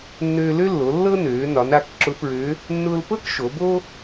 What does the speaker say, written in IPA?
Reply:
nː øː˧ l ø˥ lː o˩˧ lː ɤ˥ n øː˩˧ n ɒ˩˧ n a˩˧ k ǁ ʊ˧˥ p ɹ ø˧˥ | nː ʊː˧ l p ɤ˥ k ʃ o˩˧ b o˥

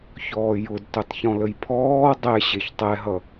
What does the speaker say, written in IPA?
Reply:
ç ɔː j ʊ d t ʊ tˤ ç ɔ̃ l ə j pʰ ɔː dˤ ɛ ɕ e ç tˤ ɛ ɦ ʌ

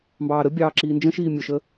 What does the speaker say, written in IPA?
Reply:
m b ɑː ɾ ə bʲ ɑː ǁ iː n d͡ʒ ə̃ ʃ iː mʲ ʊ ʃ ə

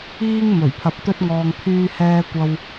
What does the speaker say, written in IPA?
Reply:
iː˧ ŋ m ɵ˨˩ ɥ pʰ ɐ˨ p̚ t̪ ɵ˥ t̚ ŋ ɔː˧ ŋ pʰ yː˧ h ɛː˧ kʷ ɐ˧ w

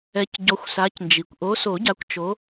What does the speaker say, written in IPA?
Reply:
ɛ˨˦ c ɟ ɔ˨˦ xʷ s a˨˦ c n d͡ʒ i˩ kʷ ʔ o˨˦ s o˨˩˦ ɟ a˨˦ kʷ t͡ʃ o˨˦

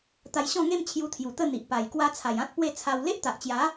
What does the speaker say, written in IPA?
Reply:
t̪ a˧ j ɕ ɔ̃˥˧ ŋ e˥˧ m t͡ɕʰ j u˧ t̪ʰ j u˨˩ t̪ ə˥˧ n̪ i˨ ʔ p a˨˩ j k w a˧ t͡sʰ a˨˩ j ã˦ t̚ p w e˥˧ t͡sʰ a˧ w l e˦ ʔ t̪ a˨ ʔ t͡ɕ j a˨˦

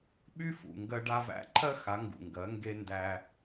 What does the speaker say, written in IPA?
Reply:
ɓ y˦ f ṵ˨ ŋ ɡ ɜ˧ ɖ a˧ v æ̰˧ ǃʰ ɜ˦ x a˨˦ ŋ ɡ ṵ˨ ŋ ɡ ɜ˨˦ ŋ ɡ e˧ n d æ˧

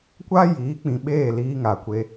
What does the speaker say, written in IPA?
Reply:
kʷ a˦ j iː˨˦ k͡p ĩ˨ ɓ eː˦˨ l iː˦ ŋ a˨ kʷ e˦

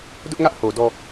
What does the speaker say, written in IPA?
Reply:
d ʊ˦ ʔ ŋ ä˦ ʔ h o˨ d ɔ˨

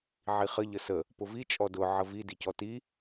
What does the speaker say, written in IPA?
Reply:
ʕ i χ ə ʎ ə s ə | p ʊ v i t͡ʃʼ ɔ d ʊ ʕ ə v i d i c ɔ t i

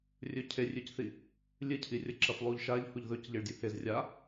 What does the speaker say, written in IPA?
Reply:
rʲ ɵ cʰ e rʲ ʉ c θ i | lʲ ɨ cʰ i rʲ ɐ ǁ ɐ f lˠ u ʎ ʃ a ʎ h u ʎ ð ɵ c ʎ i ɭ dʲ u h e z rʲ a

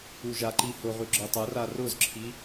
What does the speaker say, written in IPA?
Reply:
u ʒ a ǃ i h ʊ ʁ ʉ ɡ͡ǁ ɤ tˤ ɤ r a r ʊ z ǁʰ i

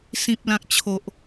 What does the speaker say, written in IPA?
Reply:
s ĩ˨ p̚ l ã˨ k̚ t͡ɕʰ o˨ ʔ

